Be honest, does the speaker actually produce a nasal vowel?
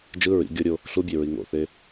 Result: no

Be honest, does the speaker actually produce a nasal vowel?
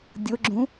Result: yes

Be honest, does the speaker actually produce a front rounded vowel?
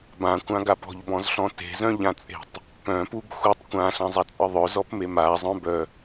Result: yes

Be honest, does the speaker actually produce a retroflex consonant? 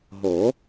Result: no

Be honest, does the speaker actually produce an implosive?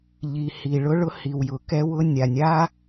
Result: no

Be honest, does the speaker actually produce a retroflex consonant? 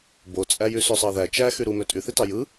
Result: no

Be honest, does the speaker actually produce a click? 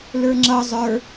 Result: yes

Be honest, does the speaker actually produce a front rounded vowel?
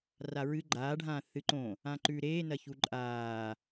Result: no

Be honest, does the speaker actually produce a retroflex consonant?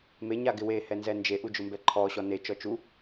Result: no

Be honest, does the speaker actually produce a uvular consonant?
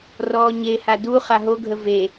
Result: yes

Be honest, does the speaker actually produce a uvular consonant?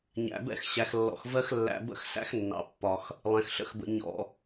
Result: no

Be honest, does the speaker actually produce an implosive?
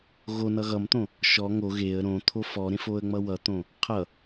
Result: no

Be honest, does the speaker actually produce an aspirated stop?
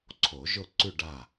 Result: yes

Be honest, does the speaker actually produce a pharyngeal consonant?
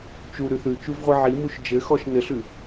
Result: yes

